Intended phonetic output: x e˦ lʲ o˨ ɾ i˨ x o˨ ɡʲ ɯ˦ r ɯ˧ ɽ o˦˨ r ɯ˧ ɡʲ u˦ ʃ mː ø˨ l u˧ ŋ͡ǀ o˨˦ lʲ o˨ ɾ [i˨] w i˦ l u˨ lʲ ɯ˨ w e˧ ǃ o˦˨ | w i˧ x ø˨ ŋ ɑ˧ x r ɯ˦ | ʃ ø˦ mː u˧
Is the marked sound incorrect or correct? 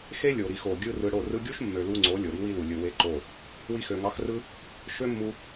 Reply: incorrect